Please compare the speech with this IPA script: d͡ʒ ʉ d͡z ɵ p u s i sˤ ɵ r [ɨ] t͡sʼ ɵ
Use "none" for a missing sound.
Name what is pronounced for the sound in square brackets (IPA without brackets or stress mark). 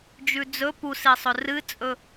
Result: ɨ